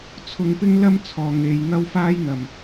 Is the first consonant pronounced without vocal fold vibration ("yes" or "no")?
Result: yes